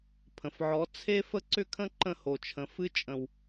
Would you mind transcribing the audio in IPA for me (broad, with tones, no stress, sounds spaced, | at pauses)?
pʰ ə̃˨ f ʕ ɔ˨˦ t͡sʰ e˦ f ə˦ ǀ ʏ˦ kʰ ə̃˦ ǃ ə̃˦˨ h o˨ t͡ʃʰ ə̃˨ f ɨ˦ t͡ʃʼ ə̃˨ w